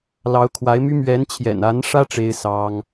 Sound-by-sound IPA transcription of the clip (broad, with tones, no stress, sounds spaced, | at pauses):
l ɑ˧˥ ʊ̯ kʰ w a˧˥ ɪ̯ m y˥ m ɥ ɛ˧˥ n t͡ɕʰ j ɛ̰˨˩ n a˧˥ n ʂ ä˥ ʈ͡ʂ e˥ ɪ̯ s ɑ˥ ŋ